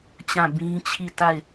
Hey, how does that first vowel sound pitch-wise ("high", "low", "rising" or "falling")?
falling